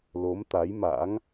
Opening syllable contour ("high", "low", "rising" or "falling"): rising